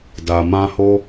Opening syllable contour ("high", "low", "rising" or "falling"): low